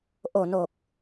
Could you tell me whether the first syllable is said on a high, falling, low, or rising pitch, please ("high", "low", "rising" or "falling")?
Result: low